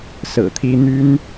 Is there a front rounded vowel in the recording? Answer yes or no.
yes